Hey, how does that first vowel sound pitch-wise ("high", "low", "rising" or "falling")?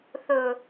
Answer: low